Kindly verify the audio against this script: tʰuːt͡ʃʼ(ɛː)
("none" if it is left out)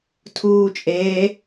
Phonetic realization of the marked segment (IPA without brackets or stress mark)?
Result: eː